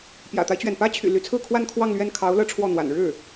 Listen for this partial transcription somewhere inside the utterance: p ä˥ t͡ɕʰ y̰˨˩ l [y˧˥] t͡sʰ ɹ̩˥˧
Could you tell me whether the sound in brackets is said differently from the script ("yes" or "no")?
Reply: no